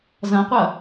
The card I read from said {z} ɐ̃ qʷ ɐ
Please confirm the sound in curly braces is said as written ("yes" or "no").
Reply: yes